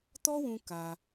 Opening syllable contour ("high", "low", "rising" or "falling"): high